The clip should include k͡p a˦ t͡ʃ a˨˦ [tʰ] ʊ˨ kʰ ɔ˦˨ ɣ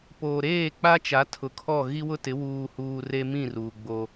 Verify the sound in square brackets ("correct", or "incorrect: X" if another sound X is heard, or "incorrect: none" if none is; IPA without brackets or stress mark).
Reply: correct